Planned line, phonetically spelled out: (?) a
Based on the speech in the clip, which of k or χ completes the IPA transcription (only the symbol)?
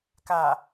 k